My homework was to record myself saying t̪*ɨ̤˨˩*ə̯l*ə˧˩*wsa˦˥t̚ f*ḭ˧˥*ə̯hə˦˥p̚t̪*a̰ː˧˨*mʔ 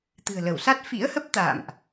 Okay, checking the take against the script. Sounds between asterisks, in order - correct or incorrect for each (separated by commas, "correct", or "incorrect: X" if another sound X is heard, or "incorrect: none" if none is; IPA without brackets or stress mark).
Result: correct, correct, correct, correct